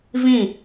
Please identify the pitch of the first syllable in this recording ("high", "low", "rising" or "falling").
falling